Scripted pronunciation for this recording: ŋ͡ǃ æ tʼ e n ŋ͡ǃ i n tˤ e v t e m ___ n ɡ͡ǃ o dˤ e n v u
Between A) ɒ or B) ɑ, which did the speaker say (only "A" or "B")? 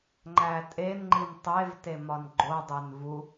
A